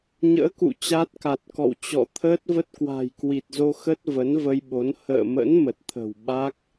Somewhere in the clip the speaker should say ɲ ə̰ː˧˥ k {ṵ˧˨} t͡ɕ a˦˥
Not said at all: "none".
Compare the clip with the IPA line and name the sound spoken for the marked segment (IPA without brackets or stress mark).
ṵ˧˨